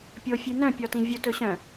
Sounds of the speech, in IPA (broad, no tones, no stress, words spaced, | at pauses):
pʲofʲʉnœ̃ pʲɔtĩvʲɵ tɵɕœ̃